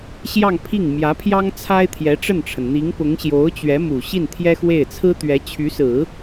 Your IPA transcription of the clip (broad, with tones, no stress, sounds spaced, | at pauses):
ɕ j ɑ˥˧ ŋ pʰ i˥˩ ŋ m j ä˧˥ pʰ j ɑ˥ ŋ t͡sʰ a˥ ɪ̯ t̪ʰ j ɛ˧˥ ʈ͡ʂ ə˥˩ n ʈ͡ʂʰ ə˩ n n̪ i˧˥ ŋ p ʊ˧˥ ŋ ɕ j o˧˥ ʊ̯ t͡ɕ ɥ ɛ˧˥ m u˨˩ ɕ i˥˩ n t̪ʰ j ɛ˥ x w e˥˩ ɪ̯ t͡sʰ ɹ̩˥ t̪ ɥ ɛ˧˥ t͡ɕʰ y˧˥ s ɹ̩˨˩˦